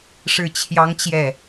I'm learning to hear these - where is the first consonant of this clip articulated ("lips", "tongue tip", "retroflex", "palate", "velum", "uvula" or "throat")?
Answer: retroflex